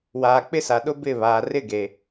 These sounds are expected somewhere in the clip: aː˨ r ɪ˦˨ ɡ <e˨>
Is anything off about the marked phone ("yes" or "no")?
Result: no